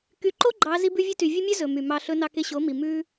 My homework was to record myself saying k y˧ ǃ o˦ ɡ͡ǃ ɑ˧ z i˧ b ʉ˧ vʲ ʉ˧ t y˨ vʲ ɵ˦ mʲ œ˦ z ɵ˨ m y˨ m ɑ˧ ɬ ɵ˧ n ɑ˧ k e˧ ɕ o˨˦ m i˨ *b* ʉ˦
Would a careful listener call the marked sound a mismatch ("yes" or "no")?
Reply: yes